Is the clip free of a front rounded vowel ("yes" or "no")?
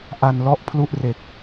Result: yes